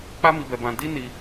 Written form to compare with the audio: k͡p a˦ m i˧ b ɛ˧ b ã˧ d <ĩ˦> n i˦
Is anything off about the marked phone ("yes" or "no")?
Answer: yes